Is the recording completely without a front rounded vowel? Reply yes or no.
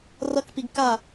yes